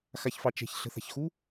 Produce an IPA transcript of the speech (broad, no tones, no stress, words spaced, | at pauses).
xaçfɑt͡ʃɛ̤ç ɬə̤θa̤çxu